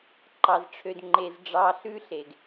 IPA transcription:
ǃ ɑ˨ z ʈ͡ʂʰ ø˨ d ŋ͡ǃ e˨ z ɖ͡ʐ ɑ˨ ɬ ʉ˦ ɬ e˨ ɡ

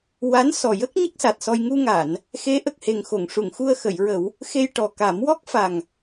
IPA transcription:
w a˧˥ n s ɔ˨˩ j ə˦˥ k̚ ɲ ə˦˥ k̚ s a˨˩ t̚ s ɔ˧ j ŋ u˧ ŋ a˨˩˨ n | x e˧˥ ʔ ə˨˩ k̚ h e˨˩ ŋ x o˨˩˨ ŋ ʂ u˨˩˨ ŋ x u˧ ə̯ x ə˨˩˨ j ɹ ə˨˩˦ w | x e˧ j ʈ ɔ˨˩ k a˨˩˦ m w ɔ˦˥ k̚ f a˨˩ ŋ

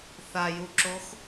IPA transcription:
θ a j u ǁ o x

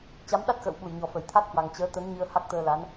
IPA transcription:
t͡ɕ a˨˦ m ɗ a˦˥ t̚ x ə̰ː˧˨ w ɓ u˧˩ j ɲ ɔ˨˩ f ə˧˩ j t̪ʰ a˦˥ t̚ h w a˨˩ ŋ t͡ɕ əː˨˦ t̪ ə˨˦ n ɲ ɨ˧ ə̯ h a˦˥ k̚ t̪ əː˧ l a˨˦ n

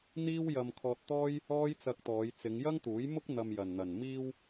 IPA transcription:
n̪ iː˥ w j ɐ˧ m kʰ ɔː˧ t̚ t̪ ɔː˥ j | ɔː˥ j t͡s ɐ˧ k̚ t̪ ɔː˨˧ j t͡s ɪ˨˧ ŋ j ɐ˥ ŋ t̪ uː˨˥ j m ʊ˥ k̚ n̪ ɐ˧ m j ɐ˨ n n̪ ɐ˨ n m iː˧ w

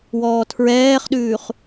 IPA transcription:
w ɔː tʰ ɹ ɛː χ ɗ ʉː χ

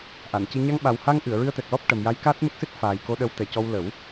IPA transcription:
ʔ a˨˩˨ n c i˧ ɲ a˧ ŋ ɓ a˨˩ w h a˧ ŋ ʔ ɨ˨˩˨ ə̯ ɹ ɨ˧ ə̯ t̪ ɛ˨˩ k̚ l ɔ˦˥ p̚ ʈ ə˨˩ m j a˧˥ j k aː˦˥ t̚ m ə˦˥ k̚ s ɨ˦˥ t̚ f aː˨˩ j k o˧ ɗ ə˧˥ w t̪ ɛ˨˩ c ɔ˧ w l ə˨˩˦ w

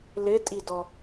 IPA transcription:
l ɪ tʼ i d ɔ

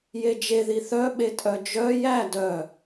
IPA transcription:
j e d͡ʒ e ð i θ œ ɓ e tʼ œ d͡ʒ œ j æ d œ

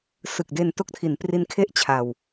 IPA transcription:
s ɯ˨˩ k̚ d e˧ n t o˦˥ k̚ tʰ i˩˦ n p r i˦˥ n kʰ e˥˩ ʔ t͡ɕʰ a˧ w

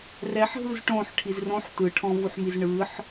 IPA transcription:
r ɛ ħ ɦ ɯ z ʈ õ ħ ʈʰ i z r õ ħ t̪ ɯ ʈʰ ɔ̃ v u ħ m i z ɳ ɯ ħ

